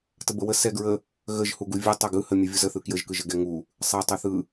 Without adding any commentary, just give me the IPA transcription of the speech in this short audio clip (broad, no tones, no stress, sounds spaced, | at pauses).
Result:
t ə b ə w ə s ɛ ɡ ɹ ə | ɣ ə ʒ h u ɡ u vʲ ɯ tˤ ɛ ɡ ɯ h ə mʲ ɯ vʲ u z ə θ ɯ k j ə ʒ k ɯ ʒ ə ɡ ɛ ŋ u | sˤ ɛ tˤ ɯ θ ɯ